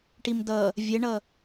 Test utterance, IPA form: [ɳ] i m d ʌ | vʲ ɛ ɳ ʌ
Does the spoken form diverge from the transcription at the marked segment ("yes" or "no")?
yes